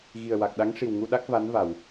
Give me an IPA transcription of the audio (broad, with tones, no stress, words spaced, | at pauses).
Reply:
ɣi˨˩ə̯wa˨˩k̚ɗa˧˥ŋ ʂi˨˩wŋu˧ ɗa˦˥k̚ va˧˥nva˨˩˨w